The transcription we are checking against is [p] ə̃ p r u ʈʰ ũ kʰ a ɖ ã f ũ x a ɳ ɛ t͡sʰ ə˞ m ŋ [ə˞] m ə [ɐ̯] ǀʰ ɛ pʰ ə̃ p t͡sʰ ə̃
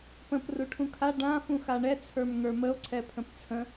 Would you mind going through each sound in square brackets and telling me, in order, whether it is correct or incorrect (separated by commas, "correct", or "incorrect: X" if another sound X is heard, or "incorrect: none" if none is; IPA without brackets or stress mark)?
correct, correct, incorrect: o̯